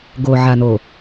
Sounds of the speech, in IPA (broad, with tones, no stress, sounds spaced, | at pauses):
ɡ o˨ ʕ a˨ n o˨